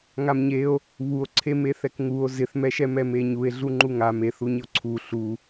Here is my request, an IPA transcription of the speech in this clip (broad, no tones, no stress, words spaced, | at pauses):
ŋamɲeo̯ | βuo̯ǀʰemeθɛk ŋuo̯ zɪθmɛʃɛmɛ meɲue̯ ɮuŋ͡ǃuŋa meθuɲɪo̯ ǀʰu ɬu